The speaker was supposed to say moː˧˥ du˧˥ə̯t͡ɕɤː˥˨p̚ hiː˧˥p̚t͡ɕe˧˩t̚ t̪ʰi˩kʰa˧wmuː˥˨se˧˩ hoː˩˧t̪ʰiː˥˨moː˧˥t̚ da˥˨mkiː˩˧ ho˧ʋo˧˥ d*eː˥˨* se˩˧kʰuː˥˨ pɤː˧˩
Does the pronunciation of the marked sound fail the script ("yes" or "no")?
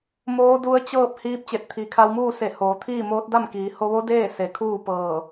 no